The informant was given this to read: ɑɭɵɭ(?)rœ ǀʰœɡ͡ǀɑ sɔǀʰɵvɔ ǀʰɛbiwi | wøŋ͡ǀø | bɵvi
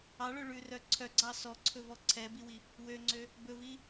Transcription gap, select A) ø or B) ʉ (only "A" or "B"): B